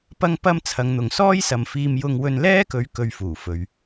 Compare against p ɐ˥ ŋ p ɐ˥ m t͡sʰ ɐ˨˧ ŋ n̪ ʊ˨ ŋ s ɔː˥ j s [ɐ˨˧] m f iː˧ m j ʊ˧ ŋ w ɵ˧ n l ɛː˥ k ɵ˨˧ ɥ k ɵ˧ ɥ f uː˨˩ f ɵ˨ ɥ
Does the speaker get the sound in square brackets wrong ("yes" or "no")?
yes